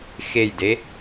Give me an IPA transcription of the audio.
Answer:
x e j d e

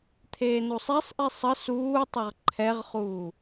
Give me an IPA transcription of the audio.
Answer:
t̪ʰ eː n u sˤ ɛ sˤ ʔ i sˤ ə s uː tˤ ə ʁ ǃʰ ɛ ʁ χ uː

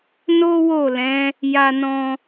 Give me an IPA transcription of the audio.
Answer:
n o˦ w o˦˨ l ɛ̃˨˦ | j a˧ n ɔ̃˧

